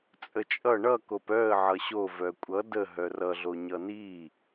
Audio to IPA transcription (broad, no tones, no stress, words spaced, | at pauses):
t͡sʼət͡ʃʼʌ ɳʌkop œə̯ ʕʌɕo vœkʷʼʌ də ɦœrʌɮo ɲʌni